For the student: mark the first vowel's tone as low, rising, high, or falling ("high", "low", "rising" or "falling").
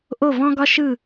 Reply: falling